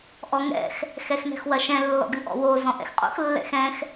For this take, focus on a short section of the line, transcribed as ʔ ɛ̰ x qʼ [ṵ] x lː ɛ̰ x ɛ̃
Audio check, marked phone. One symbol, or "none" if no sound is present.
o̰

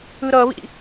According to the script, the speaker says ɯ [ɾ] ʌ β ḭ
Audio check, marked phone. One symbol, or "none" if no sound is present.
ɾ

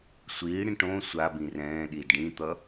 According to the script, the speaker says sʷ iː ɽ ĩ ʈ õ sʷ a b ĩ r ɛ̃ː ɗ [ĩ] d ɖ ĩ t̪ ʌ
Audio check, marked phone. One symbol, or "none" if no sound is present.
i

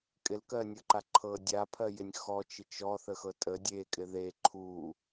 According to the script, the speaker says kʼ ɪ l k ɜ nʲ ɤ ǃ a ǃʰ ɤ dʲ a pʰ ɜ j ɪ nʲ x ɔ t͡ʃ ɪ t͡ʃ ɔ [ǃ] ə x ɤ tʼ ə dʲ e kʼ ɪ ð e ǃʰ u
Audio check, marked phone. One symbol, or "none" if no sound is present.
θ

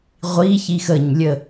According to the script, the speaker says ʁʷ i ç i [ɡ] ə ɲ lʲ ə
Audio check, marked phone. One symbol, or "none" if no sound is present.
x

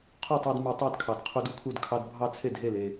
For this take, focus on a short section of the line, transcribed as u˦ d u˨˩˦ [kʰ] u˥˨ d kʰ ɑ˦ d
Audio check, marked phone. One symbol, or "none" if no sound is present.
kʰ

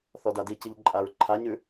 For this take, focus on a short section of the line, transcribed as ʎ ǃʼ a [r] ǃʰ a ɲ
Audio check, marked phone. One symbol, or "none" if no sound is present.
ɹ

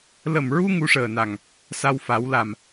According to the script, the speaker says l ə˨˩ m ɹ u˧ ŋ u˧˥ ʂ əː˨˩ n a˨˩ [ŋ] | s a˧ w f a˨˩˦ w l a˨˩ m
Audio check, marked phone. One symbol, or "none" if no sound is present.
ŋ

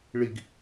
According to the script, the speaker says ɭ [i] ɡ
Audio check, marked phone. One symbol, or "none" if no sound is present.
i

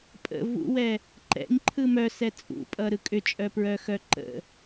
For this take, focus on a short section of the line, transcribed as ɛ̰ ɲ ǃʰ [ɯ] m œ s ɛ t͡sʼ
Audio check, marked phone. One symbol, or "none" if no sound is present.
ɯ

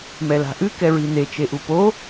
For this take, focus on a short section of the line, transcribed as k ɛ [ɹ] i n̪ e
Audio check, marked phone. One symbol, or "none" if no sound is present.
ɹ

